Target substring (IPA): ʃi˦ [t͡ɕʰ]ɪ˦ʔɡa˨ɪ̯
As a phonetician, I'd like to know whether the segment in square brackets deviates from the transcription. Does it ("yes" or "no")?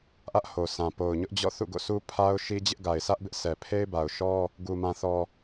yes